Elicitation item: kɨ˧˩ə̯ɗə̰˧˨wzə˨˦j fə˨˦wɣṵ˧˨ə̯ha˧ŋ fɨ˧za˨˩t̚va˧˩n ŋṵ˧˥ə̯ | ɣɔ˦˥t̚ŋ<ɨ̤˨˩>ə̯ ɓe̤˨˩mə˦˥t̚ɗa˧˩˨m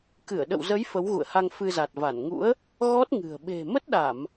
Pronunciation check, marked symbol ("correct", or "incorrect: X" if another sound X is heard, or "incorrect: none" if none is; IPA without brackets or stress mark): correct